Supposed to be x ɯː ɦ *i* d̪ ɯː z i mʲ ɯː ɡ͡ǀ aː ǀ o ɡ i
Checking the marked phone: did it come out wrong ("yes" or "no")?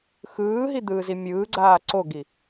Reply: no